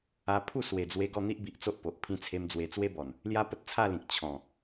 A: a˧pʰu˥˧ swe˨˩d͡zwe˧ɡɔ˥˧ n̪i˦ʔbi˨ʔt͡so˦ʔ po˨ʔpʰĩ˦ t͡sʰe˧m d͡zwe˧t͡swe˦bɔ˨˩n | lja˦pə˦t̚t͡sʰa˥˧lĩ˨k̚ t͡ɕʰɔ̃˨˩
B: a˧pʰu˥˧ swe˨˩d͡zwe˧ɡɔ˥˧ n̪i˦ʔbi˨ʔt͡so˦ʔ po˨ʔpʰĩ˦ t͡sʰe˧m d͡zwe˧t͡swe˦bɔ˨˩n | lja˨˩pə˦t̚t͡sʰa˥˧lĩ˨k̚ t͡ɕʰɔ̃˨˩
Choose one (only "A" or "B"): A